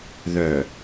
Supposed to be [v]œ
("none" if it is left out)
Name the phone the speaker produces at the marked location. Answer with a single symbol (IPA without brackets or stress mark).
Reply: ð